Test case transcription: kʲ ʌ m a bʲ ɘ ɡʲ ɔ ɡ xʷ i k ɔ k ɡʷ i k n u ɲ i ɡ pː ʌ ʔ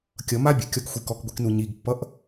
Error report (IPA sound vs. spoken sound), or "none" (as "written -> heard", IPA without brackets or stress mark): ɡʲ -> kʲ